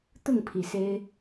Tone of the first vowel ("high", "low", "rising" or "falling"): falling